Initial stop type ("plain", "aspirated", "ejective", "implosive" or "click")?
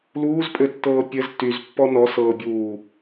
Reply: ejective